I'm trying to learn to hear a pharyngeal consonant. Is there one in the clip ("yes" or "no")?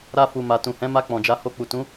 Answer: no